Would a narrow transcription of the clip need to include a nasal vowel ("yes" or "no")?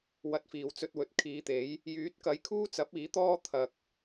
no